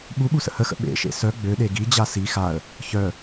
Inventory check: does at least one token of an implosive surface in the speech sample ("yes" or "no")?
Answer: yes